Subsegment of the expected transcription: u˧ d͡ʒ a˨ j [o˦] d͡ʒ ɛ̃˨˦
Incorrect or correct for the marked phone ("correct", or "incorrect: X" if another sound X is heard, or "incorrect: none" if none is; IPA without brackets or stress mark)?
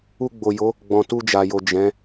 incorrect: o˨